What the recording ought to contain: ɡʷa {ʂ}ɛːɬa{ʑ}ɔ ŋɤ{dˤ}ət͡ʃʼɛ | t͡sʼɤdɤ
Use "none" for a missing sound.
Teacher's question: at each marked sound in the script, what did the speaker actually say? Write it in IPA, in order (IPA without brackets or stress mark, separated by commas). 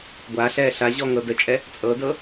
ɬ, ʑ, d